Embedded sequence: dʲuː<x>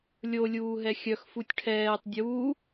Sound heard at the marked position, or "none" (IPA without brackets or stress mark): none